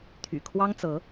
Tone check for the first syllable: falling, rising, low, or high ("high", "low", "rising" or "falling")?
low